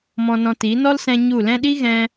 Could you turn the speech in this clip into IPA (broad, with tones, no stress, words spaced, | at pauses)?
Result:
mɔ̃˧nɔ̃˧ ti˨˦ nɔ˦lsɛ̃˧ ɲu˦˨ lɛ̃˧ɗi˦ ɣɛ̃˧